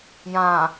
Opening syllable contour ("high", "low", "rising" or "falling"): low